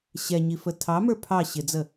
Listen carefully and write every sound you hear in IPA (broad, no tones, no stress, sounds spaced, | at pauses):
ɕ ɛ ɲ i f ə tʰ ɑ m ə˞ pʰ ɑ ɕ ɪ d͡z ə